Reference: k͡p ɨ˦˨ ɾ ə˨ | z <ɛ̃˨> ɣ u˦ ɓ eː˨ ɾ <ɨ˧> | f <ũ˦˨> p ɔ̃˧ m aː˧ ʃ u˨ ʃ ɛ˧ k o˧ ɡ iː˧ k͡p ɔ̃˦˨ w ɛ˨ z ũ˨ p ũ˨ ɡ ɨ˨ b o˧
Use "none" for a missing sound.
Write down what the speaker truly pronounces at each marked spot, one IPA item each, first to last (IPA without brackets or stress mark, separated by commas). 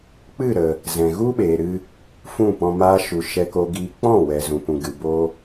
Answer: ɛ̃˨, ɨ˧, ũ˦˨